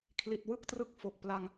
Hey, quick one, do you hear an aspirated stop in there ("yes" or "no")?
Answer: yes